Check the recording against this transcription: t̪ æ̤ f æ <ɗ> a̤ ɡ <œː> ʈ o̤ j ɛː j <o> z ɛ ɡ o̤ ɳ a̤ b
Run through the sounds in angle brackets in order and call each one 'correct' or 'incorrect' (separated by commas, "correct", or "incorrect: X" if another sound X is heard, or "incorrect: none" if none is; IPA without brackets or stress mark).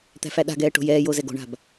correct, incorrect: ɛː, correct